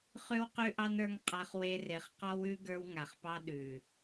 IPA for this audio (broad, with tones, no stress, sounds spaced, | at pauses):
χ ʉ˦ w q ʉ˦ ʔ ɑ˦ n ə˞˦ ŋ qʼ a˦ χ w e˦ r e˨ χ q ɔ˦ w ʉ˦ ɡ ə˞˦ w ŋ a˨ χ p ɑ˦ ɗ ʉ˨